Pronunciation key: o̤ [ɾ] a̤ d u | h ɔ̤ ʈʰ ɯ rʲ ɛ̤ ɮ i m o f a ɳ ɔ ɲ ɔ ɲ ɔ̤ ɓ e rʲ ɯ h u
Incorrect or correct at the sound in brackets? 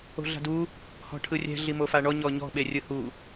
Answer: incorrect: ɮ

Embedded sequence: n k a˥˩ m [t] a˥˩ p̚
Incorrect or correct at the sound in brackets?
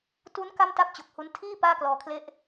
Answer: correct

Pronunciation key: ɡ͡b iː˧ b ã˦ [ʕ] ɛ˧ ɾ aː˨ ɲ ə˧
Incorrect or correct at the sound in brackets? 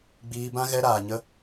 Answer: incorrect: ɣ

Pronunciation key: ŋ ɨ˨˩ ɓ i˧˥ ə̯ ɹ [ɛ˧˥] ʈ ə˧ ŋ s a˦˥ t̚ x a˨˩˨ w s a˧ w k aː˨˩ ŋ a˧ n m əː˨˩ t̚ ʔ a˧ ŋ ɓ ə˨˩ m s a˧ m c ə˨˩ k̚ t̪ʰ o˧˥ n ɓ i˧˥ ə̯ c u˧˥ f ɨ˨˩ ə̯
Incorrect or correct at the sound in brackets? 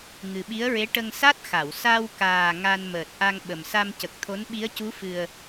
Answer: incorrect: e˧˥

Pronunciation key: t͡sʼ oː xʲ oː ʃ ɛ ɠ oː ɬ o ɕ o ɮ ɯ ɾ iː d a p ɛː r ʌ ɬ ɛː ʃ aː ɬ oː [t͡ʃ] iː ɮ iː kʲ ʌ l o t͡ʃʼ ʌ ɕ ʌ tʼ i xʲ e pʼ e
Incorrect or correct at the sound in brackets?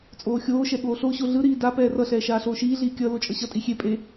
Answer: incorrect: ʃ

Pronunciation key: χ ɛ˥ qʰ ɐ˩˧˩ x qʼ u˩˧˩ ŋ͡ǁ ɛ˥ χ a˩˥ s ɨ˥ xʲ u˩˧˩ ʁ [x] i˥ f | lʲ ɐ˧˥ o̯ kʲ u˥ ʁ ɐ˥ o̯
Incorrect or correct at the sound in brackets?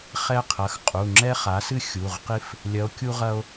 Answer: incorrect: q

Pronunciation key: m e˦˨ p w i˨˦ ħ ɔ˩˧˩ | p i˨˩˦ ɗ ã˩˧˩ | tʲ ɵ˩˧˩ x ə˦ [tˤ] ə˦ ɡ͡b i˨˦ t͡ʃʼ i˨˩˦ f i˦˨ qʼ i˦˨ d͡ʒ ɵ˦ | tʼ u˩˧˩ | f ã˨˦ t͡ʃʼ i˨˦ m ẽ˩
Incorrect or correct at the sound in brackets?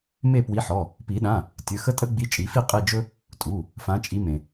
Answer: incorrect: tʼ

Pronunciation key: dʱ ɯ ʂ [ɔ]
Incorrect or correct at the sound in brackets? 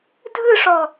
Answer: correct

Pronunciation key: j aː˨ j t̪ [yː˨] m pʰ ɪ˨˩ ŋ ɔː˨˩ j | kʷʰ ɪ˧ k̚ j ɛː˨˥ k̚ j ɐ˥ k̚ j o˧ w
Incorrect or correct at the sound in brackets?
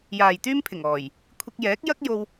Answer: incorrect: yː˥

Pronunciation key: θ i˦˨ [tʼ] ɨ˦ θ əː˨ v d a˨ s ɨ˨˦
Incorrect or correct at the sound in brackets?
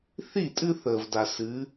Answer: correct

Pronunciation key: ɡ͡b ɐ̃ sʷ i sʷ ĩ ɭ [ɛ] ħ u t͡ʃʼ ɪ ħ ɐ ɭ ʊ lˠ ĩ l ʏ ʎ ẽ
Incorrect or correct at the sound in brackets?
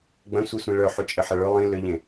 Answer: incorrect: œ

